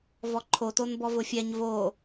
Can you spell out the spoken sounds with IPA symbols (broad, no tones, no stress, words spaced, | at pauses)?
vɔǃʰoton bɔvʊfʲɛɲ vo